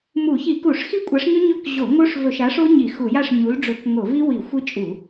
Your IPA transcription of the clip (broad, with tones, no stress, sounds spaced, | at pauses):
m u˧˩˧ ç i˧˩˧ k u˧˩˧ ʂ x i˦˥ kʷʼ a˨˥ ʂ ɲ ɵ˦˥ ɲ ɵ˥˨ k ʑ o˧˩˧ ŋ o˦˥ ʂ v ɵ˧˩˧ ʃ a˨˥ ʂ o˦˥ ɲ i˧˩˧ x u˧˩˧ j a˥˨ ʂ ɲ u˨˥ l ɖ͡ʐ ɵ˧˩˧ k ŋ o˧˩˧ v i˦˥ w i˧˩˧ xʷ i˦˥ t͡ʃʼ u˧˩˧